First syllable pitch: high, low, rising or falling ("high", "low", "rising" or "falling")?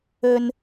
low